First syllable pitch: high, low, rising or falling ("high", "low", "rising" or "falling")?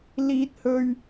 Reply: high